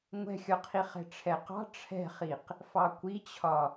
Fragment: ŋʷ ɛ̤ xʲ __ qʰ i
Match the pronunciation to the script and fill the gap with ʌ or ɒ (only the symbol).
ɒ